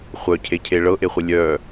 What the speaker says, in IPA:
χʷ œ cʰ e cʰ e ɭ ɤ ʔ e χʷ ə lʲ œ

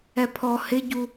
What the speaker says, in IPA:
ɛ pʰ ɔ h ɪ ɟ u

